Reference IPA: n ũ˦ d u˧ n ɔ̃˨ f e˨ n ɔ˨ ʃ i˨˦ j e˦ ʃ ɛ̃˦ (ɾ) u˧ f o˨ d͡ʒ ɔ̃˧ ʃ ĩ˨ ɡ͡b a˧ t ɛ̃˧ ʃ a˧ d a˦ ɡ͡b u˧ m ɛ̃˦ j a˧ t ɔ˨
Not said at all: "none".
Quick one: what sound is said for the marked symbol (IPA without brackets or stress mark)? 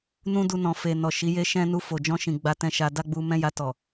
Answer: n